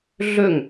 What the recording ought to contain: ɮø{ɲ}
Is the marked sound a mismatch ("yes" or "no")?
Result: yes